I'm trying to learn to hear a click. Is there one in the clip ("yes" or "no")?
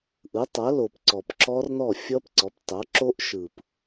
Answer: yes